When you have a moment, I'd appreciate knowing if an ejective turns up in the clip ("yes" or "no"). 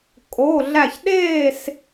yes